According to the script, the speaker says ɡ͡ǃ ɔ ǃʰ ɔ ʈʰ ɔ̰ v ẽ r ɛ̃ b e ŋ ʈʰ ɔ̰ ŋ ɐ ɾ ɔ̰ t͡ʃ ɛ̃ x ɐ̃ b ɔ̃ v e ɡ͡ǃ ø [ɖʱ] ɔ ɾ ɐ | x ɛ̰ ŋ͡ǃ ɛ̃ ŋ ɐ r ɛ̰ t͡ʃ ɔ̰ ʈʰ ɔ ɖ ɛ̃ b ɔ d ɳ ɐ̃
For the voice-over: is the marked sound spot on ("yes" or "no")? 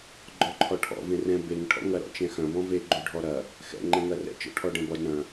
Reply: yes